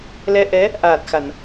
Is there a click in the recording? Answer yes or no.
no